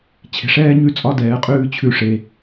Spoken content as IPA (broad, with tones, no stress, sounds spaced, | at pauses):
t͡ɕʰ e̤˨ ʂ ɛː˦ ɲ ʉ˦ t͡sʼ ɒ˦ d ɛː˨˦ qʼ ʉː˦ t͡ɕʰ ʉ˦ ʂ e˦